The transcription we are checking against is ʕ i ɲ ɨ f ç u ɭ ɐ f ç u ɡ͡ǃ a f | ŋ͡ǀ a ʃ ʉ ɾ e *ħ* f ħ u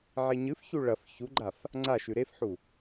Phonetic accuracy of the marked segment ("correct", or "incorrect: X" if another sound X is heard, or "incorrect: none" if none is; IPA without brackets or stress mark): incorrect: none